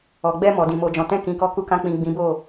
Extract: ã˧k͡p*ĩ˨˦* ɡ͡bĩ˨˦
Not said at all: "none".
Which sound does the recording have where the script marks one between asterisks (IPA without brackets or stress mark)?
ĩ˨